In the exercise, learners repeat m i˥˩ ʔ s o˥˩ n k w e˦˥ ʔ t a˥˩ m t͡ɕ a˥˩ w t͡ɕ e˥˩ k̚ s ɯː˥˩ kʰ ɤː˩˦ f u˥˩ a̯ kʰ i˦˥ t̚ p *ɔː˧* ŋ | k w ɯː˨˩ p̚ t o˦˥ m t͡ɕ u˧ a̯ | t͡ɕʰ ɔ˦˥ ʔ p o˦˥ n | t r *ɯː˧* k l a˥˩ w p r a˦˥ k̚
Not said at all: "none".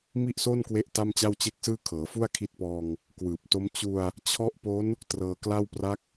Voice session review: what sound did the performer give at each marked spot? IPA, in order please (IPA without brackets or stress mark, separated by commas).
ɔː˧, ɤː˧